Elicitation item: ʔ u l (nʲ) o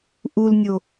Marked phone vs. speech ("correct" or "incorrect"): correct